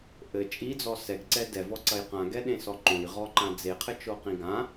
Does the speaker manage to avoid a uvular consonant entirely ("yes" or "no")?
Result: no